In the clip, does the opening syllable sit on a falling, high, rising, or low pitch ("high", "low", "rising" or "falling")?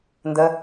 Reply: low